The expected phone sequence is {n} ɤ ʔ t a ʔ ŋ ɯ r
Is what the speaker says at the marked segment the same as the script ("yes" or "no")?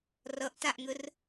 no